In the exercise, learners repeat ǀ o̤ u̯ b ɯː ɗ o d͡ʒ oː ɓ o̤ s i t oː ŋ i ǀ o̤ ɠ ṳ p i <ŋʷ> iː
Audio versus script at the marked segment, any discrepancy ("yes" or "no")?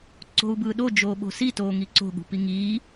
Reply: yes